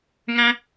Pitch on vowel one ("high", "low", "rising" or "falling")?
high